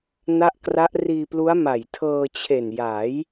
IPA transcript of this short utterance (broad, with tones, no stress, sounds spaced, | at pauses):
n a˦˥ ʔ k r a˦˥ ʔ r iː˧ p l u˦˥ a̯ m a˨˩ j tʰ ɤː˧ t͡ɕʰ e˨˩ n j a˩˦ j